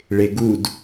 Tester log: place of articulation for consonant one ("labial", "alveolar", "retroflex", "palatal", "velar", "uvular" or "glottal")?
retroflex